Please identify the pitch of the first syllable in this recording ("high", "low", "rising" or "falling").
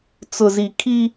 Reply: low